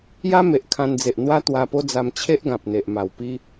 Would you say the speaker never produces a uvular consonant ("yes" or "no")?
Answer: yes